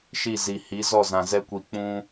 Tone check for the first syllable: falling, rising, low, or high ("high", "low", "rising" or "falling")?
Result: falling